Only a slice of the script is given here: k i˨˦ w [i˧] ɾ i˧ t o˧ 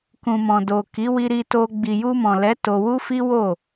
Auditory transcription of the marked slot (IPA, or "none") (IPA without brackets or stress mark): i˧